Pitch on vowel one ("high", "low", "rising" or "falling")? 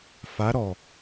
rising